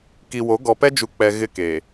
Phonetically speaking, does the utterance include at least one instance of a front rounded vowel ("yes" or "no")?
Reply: no